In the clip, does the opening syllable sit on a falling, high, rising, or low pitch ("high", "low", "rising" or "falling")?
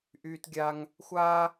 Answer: high